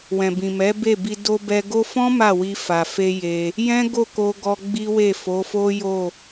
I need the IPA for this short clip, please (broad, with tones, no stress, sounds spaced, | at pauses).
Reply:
w ɛ̃˨ b ĩ˨ m ɛ˨˦ b e˦˨ b i˧ d o˧ b ɛ˧ ɡ o˦ f ɔ̃˦ m a˦˨ w i˧ f a˨ f e˧ j e˧ | j ɛ̃˦ ɡ o˦˨ k o˧ ɡ ɔ˧ ɡ͡b i˦ w e˦˨ f o˨˦ f o˦ j o˦˨